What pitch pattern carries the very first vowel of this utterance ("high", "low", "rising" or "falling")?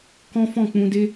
high